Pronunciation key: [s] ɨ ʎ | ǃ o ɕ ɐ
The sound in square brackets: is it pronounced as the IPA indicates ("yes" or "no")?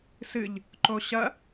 yes